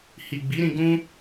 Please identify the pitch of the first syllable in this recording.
low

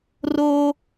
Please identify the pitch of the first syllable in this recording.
high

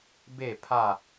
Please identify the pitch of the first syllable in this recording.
falling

